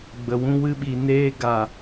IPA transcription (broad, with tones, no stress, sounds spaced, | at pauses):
ɡ͡b ə˨ w ũ˦ w ɨ˦ ɓ i˨ n eː˧ ɡ a˨